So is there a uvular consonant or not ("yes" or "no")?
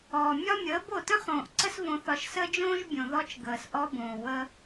yes